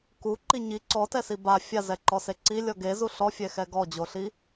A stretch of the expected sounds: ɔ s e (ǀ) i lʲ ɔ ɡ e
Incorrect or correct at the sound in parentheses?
correct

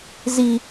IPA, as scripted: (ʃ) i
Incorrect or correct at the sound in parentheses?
incorrect: z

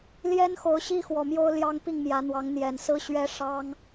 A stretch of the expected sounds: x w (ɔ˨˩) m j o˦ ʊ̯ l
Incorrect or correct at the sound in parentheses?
correct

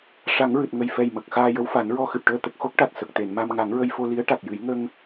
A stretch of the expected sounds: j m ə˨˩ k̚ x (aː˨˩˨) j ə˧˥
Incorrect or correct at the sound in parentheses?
incorrect: aː˧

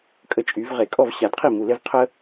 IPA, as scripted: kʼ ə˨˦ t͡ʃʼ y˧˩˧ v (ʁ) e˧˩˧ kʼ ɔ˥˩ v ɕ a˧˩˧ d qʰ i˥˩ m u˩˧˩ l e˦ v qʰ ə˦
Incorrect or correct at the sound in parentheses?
correct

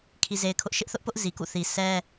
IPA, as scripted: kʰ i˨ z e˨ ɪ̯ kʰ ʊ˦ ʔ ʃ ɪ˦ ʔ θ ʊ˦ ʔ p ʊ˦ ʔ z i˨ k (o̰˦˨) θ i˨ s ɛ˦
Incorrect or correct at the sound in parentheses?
incorrect: ṵ˦˨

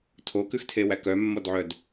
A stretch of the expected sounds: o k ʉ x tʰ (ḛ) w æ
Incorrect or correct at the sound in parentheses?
incorrect: e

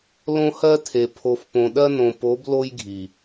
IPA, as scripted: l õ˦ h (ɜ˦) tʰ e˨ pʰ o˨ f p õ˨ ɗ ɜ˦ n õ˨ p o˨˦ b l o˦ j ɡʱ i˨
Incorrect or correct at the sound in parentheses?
correct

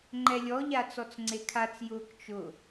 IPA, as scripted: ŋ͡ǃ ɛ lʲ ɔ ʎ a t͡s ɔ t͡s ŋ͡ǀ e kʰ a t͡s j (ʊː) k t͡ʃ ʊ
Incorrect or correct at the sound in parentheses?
correct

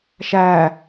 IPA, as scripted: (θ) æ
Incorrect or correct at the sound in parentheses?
incorrect: ʃ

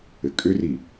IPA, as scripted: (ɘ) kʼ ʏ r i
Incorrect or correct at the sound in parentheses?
correct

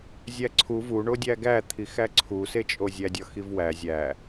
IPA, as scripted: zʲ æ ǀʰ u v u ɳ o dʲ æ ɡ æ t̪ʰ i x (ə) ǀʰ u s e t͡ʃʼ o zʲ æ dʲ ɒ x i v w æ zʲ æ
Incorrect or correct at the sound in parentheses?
incorrect: æ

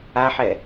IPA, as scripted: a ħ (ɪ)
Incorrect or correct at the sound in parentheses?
incorrect: ɛ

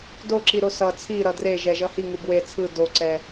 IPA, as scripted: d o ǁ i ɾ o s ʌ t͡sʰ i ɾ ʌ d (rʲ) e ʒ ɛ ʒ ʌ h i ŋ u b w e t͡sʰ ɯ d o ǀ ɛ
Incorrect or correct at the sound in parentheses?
incorrect: r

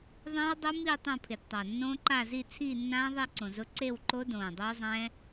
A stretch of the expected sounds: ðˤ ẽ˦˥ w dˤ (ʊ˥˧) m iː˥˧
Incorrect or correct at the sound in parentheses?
incorrect: ʊ˦˥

